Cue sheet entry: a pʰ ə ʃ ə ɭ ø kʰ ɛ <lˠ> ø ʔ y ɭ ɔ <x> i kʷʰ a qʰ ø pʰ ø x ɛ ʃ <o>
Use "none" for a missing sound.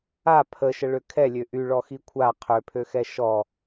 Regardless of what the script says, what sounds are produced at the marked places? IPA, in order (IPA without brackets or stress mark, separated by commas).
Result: lʲ, x, ɔ